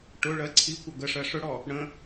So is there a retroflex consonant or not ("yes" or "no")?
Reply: yes